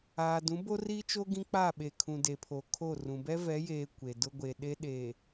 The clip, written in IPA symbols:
aː˨dũ˨˦ bo˦ri˦t͡ʃo˦ ɡĩ˦k͡pa˦˨ɓe˨kʰũ˨ de˨pʰo˨kʰo˦˨rũ˨ bɛ˦vɛ˨˦jeː˨ kʷe˨dʊ˦ ɡʷe˨ɗe˦ ɗeː˨

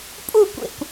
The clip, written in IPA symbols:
pʼu kʷḛkʷ

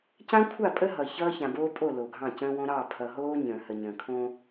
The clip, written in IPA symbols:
cã˦kʷʰa˦˨pʼə˦ ɦʌ˨çʌː˦ çã˨boː˦pʼo˦˨ lo˨ɡʱɑ̃˦˨ cə̃ː˦wõ˦ ɾɑ˦˨pʰʌ˨ɦoː˦ ɲə̃ː˨hə˨ɲə̃ː˨kʰõ˦

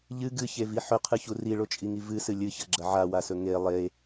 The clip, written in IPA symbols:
ʎɨ ɡɨçevi ħɵqʰɨçu riɭot͡ʃʼiŋi vɨsɨ lʲɨçɐɡ͡ǁɐ ʕawasɵ ŋe lˠe

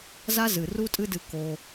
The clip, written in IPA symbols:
za˦zɨ˨ ru˦tʼɨ˦dɨ˧ ko˧

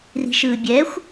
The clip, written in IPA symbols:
ri̤ʃɯːbʲɛxʷ

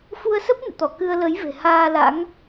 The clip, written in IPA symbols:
fu˧ə̯sə˦˥p̚ nɨ̰˧˨t̪ɔ˧˩ kɨ˧ə̯lə˨˦jve̤˨˩ haː˧la̰˧˥ŋ

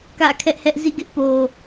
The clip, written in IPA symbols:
kä̰˦˨kʰɛ˦ʔhɛ˦ʔ zḭ˦˨ɡɪ˦ʔ po˨

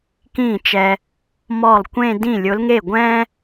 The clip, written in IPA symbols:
kĩ˥˩t͡ʃɛ˧ | mɔ˥˩lˠ kʷẽ˥˧dĩ˥˩ lʲʊ˨˥lŋe˥˩ɡʷɛ̃ː˥

